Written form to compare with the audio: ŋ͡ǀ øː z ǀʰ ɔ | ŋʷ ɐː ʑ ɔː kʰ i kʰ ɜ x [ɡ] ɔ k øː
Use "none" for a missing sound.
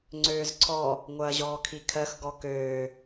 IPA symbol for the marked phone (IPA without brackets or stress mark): ɡ